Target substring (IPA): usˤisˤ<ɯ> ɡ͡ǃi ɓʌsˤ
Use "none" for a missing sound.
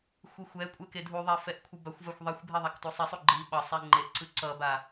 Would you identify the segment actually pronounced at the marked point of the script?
u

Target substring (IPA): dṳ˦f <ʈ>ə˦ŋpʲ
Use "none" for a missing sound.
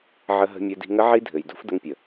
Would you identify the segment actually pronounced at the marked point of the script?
d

